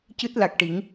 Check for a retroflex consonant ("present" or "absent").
present